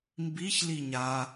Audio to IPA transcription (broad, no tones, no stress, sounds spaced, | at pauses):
m b i ç l i ɲ a